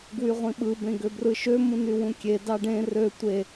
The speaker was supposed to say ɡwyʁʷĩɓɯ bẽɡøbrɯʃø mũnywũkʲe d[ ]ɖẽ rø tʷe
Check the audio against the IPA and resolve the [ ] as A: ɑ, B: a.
A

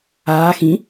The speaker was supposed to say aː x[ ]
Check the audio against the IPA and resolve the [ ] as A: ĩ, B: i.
A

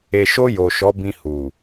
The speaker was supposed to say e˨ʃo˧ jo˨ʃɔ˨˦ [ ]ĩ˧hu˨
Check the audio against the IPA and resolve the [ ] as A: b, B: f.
A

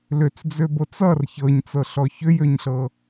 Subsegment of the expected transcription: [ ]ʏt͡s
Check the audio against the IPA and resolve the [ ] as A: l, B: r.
A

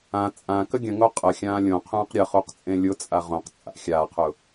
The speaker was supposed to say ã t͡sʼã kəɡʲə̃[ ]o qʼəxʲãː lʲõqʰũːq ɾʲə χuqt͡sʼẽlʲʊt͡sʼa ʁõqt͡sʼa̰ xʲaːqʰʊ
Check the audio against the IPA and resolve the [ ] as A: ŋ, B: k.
A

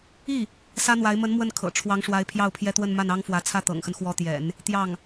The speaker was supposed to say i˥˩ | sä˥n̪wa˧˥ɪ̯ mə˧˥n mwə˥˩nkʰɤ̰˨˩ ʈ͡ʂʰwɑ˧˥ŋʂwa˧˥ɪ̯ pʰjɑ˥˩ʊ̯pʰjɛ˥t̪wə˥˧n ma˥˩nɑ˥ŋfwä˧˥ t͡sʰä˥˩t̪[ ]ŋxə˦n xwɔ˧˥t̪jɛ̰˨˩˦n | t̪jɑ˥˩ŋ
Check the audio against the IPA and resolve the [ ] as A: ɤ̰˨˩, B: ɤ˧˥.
A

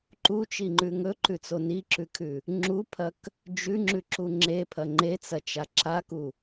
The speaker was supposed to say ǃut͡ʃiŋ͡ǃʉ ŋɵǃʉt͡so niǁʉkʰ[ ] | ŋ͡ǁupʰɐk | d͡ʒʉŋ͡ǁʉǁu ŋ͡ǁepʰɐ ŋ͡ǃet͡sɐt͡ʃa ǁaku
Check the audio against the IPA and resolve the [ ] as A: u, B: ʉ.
B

